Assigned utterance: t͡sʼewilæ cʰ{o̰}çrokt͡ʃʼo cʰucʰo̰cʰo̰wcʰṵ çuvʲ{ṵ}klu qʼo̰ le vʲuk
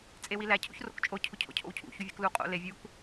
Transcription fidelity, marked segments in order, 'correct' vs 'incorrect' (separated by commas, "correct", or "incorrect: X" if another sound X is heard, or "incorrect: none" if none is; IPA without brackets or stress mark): incorrect: ṵ, correct